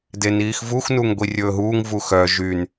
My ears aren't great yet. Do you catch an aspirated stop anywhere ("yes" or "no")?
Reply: no